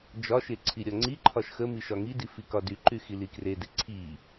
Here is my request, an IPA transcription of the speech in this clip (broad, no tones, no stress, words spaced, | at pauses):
d͡ʒɒʃe ǀʰiɾʲɒŋ͡ǀiǃʰɒʃ xə miʃɒŋidi fikɒdyǃy xilikrede ǀʰi